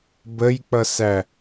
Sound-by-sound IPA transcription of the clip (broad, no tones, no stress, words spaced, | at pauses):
bəjk͡pʌsæ